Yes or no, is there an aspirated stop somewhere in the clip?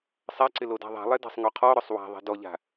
yes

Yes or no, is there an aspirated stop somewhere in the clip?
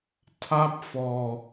yes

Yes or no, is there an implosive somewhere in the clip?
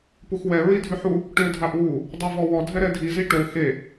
no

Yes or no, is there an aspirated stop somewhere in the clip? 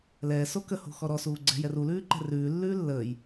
no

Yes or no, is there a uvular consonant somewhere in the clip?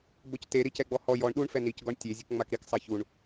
no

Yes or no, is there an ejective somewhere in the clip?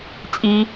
yes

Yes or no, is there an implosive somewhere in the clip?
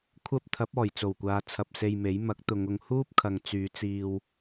no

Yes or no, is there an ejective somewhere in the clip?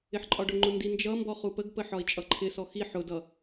yes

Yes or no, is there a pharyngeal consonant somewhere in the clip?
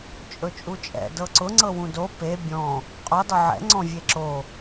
yes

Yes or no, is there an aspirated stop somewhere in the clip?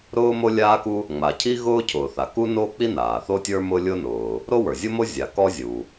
yes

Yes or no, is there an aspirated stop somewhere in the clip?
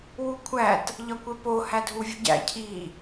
yes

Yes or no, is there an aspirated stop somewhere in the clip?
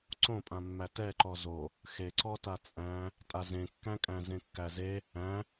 no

